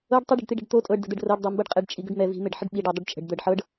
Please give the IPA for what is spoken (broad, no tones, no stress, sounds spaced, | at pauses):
ɤ ɖ tˤ ʏ ɖ ə̤ ɖ t̪ i ɖ ə̤ ɖ t̪ o tʼ ɤ ɖ d ə̤ d̪ ɛ ɖ r ɤ ɖ dˤ ɤ m b ɤ ɖ qʼ ɛ ɖ t͡ʃʼ i ɡ ʏ ɖ m ɛ v i̤ m e ɖ ħ ə ɖ ɓ i ɖ ɤ dˤ ə ɖ t͡ʃʼ ə̤ ɖ d̪ ɤ ɖ ħ ɤ ɖ